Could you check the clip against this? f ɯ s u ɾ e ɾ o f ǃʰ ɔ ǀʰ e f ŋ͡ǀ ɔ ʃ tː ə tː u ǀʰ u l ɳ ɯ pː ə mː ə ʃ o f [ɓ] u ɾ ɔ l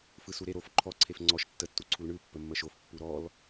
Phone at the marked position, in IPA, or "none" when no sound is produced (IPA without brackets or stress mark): pː